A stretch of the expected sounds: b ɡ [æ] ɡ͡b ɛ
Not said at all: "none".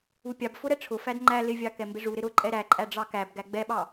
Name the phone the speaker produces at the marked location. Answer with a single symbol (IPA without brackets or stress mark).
æ